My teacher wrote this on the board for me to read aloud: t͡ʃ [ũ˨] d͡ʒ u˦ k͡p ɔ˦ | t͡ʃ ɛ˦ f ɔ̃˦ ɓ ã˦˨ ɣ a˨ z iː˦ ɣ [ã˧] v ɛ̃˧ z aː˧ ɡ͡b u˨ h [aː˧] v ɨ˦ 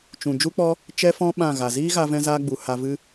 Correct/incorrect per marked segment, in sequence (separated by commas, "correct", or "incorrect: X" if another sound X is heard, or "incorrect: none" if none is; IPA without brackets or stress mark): correct, incorrect: a˧, incorrect: a˧